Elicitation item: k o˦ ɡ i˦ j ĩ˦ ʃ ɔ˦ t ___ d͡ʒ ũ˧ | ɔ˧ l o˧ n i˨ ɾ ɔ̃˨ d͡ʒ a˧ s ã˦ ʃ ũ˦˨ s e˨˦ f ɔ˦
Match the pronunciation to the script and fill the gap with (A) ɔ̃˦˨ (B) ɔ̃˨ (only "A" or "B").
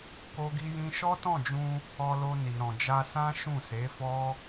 A